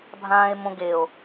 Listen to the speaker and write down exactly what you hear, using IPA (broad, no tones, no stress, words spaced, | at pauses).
bʱãːe̯mõɡeo̯